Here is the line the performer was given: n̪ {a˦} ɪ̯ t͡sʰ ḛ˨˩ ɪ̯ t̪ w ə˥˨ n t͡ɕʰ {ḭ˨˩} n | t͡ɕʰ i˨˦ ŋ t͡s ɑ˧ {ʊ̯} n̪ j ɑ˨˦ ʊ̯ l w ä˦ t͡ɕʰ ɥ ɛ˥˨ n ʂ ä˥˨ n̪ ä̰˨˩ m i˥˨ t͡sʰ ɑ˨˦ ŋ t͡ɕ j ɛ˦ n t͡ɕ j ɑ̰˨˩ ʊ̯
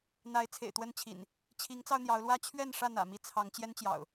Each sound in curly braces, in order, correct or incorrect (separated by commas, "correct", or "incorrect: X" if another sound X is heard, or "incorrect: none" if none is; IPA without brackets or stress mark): incorrect: a˨˦, correct, correct